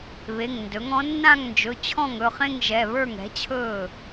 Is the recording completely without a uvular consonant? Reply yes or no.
no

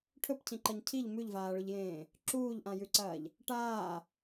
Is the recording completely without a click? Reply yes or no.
no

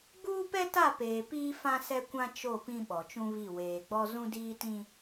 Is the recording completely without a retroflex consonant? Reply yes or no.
yes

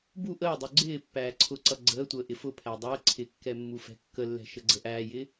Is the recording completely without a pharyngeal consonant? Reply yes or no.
yes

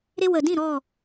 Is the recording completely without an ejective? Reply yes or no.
yes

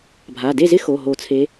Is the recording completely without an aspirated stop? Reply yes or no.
no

